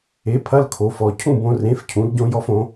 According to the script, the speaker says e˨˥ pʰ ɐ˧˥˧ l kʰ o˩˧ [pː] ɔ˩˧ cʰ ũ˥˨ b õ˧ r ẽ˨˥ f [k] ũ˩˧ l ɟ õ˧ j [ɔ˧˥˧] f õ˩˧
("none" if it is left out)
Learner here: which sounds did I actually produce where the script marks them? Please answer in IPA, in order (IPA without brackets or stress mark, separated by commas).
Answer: f, cʰ, ɔ˧